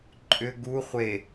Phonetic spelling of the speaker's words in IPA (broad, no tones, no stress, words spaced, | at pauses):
ǃʼʏ ɡu χʷe